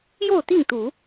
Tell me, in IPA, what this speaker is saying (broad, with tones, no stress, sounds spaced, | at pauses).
j o˥˨ ʊ̯ t̪ i˥˨ ŋ t̪ u˨˦